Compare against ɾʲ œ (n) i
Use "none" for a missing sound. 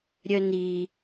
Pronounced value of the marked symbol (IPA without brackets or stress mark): n